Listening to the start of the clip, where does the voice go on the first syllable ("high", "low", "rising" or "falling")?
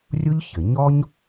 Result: high